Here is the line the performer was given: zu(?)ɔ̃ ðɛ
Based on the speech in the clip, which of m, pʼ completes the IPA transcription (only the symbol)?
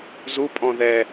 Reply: pʼ